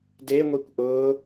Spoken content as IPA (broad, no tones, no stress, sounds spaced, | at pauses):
d e ŋʷ i kʷ ʔ ʊː